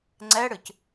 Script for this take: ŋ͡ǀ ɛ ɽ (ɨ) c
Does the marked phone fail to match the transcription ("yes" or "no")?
no